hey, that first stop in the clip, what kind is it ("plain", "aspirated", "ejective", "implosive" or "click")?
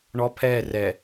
aspirated